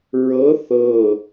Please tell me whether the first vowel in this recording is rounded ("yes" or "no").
no